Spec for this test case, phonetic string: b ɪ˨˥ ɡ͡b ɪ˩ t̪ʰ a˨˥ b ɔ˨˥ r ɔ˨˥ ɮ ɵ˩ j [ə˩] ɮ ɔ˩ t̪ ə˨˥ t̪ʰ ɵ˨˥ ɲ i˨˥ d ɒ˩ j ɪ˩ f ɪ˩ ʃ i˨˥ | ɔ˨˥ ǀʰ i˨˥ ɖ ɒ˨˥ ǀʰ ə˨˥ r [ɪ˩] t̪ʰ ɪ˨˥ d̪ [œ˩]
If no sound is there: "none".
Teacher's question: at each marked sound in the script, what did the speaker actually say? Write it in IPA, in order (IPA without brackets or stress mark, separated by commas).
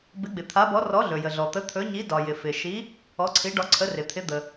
ə˩, ɪ˩, ə˩